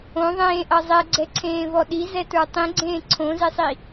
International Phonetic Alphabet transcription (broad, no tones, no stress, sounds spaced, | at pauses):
õ ðˤ ẽː ʔ ʌ zˤ ɛ ɡ͡ǀ ɛ ǀʰ ẽː v ɔ ɗ i z ɛ t ə˞ tˤ ĩ ɡ͡ǀ ẽː ǀʰ õ z e sˤ i